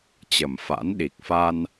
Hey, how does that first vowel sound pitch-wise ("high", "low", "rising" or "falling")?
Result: low